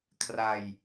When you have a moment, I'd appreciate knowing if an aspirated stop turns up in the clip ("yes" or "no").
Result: yes